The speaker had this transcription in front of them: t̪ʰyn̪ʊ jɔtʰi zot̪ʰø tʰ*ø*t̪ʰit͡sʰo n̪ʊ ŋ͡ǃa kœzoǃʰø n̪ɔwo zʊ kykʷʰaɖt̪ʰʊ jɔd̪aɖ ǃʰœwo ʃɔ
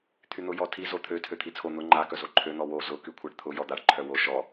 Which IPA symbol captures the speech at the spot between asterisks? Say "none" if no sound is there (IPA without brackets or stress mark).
ø